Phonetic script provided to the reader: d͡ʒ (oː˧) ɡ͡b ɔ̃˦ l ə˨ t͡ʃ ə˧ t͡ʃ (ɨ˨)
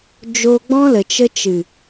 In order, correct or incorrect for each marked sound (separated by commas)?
incorrect, correct